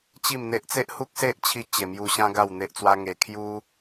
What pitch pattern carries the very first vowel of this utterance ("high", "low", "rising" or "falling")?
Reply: falling